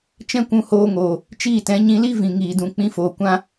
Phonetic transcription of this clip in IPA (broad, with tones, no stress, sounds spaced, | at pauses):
t͡ʃ ɛ̃˦ kʷ ũ˧ h oː˧ ŋ oː˨ | t͡ʃ iː˦˨ t ɛ̃˨˦ ɲ ĩ˧ l i˦ v ĩ˨ ŋ iː˨ d ũ˨ k͡p ĩ˧ f oː˨ kʷ ã˧